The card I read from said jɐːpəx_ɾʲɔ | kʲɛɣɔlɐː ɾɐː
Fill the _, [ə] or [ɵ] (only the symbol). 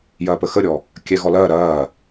ə